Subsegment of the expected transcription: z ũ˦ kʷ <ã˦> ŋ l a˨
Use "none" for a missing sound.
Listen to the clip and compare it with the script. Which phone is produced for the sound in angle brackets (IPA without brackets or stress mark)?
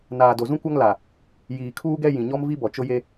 a˦